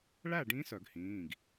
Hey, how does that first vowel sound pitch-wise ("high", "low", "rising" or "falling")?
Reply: falling